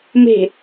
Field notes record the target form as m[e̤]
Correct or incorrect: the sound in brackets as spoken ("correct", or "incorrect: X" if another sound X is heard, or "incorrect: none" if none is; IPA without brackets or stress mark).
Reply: correct